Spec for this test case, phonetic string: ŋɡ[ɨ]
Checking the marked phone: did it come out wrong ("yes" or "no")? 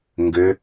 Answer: yes